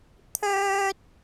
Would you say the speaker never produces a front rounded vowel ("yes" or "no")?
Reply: no